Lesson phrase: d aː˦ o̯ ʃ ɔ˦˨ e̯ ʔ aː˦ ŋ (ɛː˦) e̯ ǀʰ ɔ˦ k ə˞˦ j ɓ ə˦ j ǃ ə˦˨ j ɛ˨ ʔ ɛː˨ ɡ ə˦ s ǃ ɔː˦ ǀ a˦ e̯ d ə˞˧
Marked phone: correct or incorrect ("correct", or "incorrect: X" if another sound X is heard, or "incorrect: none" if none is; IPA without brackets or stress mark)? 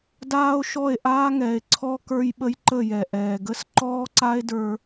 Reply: incorrect: ɛː˨